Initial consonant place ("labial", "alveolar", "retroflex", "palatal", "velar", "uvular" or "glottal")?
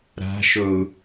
alveolar